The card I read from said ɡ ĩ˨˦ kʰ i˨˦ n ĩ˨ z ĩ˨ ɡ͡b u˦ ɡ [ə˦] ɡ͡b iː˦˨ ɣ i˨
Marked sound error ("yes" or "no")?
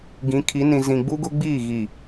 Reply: yes